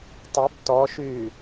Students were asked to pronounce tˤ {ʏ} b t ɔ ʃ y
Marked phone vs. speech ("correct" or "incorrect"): correct